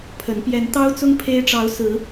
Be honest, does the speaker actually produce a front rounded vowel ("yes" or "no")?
no